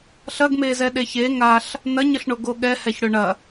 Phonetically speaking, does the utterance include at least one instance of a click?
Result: no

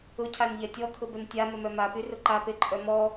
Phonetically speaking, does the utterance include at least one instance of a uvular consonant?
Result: no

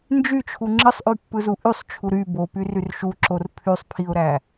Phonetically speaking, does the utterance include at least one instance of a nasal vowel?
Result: no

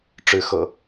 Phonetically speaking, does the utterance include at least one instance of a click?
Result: no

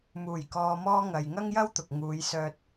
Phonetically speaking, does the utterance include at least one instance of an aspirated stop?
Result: no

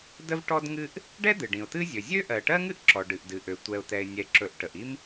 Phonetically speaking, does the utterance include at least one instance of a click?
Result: yes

